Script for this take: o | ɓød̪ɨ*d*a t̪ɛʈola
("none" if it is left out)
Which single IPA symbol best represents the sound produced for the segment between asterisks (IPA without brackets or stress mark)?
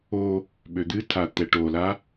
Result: tʰ